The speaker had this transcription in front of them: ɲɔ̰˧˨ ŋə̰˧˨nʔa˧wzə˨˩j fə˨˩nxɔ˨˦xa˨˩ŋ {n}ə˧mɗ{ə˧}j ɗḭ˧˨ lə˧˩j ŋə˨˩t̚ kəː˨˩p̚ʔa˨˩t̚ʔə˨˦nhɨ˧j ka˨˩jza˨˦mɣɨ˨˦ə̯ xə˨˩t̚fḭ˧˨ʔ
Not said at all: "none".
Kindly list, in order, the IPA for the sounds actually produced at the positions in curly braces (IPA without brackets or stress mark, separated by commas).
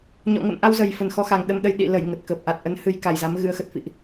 ɗ, ə˧